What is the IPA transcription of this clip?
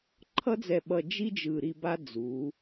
ǃʰ ʌ˥ d͡z ɛ˧˩ ɓ ʌ˧˩ d͡ʒ i˥ d͡ʒ ɯ˧˩ ɾ i˥˧ b a˥ d͡z u˩˧

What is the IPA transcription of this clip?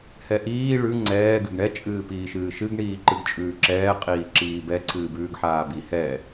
h ɛ ʔ iː ɭ ʉ ŋ͡ǀ ɛː ɡ ɨ ɡ ɳ ɛ t͡ʃʼ ɨː p iː ʃ ɨː ʃ ɨ ɡ ɳ iː ǃ ɨ ɡ t͡ʃʼ ʉː ǁ ɛː qʼ iː ǁ iː b ɛ ǀʰ ɨː b ʉː ɡ ħ aː b i h ɛ

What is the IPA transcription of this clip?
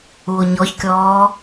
u o̯ ɲ ɔ ç kʲ ɔː

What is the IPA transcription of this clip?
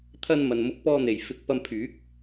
t̪ʰ ɐ˧ n m ɐ˨ n m ʊ˨˥ k̚ p ɔː˧ n̪ e˨˩ j f ɪ˨˥ k̚ p ɐ˧ m pʰ yː˨˥ k̚

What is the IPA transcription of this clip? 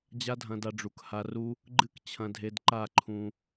d͡ʑ a˦ dʱ ɐ̃˧ d a˧ ɖ͡ʐ u˨ k h a˧ r u˦ | ɡ͡ǃ ɨ˦ k t͡ɕʰ ɐ̃˧ dʱ e˧ d ǃ a˦˨ ǃʰ ũ˧

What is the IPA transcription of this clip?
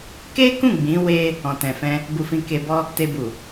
k e˦ k ũ˦˨ ɡ͡b ĩ˨˦ w e˧ | ɔ̃˨ t ɛ̃˨ f ɛ̃˧ | b u˧ f ĩ˧ k e˧ b ɔ˦ | t e˧ b u˨

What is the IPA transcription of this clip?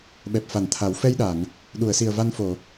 ɓ ɛ˨˩ p̚ f a˨˩˨ n t̪ʰ a˨˩˦ w f ɛ˧ j ɗ a˨˩˨ ŋ | ɗ u˨˩˨ ə̯ s i˨˩ ə̯ v a˧ n f o˨˩˨

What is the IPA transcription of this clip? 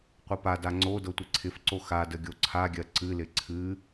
qʷ ɤ p a d a ŋ͡ǀ o d ɤ tʷ ɪ ǀʰ ɪ f ǀ o x a d ə ɡʲ o ǀʰ a ɡʲ ɜ ǀ ɨ l ɪ ǀʰ ɨ

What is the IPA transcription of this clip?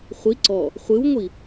χʷ i ǀ ɔ | χʷ ɨ w ŋʷ i

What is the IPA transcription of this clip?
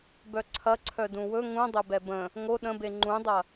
b œ ǀʰ ɐ ǀʰ œ d ũ w ɵ ŋ ũ dˤ ɵ b ɛ b ə̃ | ŋ o ɗ ə̃ b e ŋ͡ǃ ũ dˤ ɐ

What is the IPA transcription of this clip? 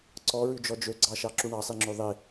ǀ ɔ ɹ ʉ d͡ʒ ɔ d͡ʒ ø ɡ͡ǀ ɑ ʃ ɑ ǁ u ɳ ɑ sˤ i ŋ͡ǁ ø ðˤ i

